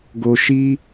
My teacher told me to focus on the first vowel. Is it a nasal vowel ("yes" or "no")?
no